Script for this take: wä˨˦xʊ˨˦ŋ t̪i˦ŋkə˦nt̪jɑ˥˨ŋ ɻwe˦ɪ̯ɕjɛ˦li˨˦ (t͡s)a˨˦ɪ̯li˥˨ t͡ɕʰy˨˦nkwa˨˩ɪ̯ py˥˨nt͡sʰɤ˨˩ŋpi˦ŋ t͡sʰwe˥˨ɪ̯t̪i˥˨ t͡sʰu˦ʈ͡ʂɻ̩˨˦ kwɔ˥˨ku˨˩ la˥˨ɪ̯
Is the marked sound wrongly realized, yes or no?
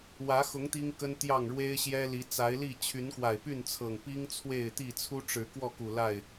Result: no